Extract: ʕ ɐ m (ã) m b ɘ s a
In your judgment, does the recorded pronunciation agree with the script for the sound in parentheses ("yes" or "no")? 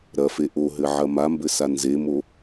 no